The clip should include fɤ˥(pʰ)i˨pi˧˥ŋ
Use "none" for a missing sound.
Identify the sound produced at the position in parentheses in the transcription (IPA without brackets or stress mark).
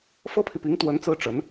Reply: pʰ